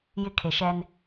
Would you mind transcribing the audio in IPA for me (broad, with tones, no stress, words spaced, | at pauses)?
jɪ˦kʰe˨ʃɛ˦n